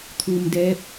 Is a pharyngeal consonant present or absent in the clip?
absent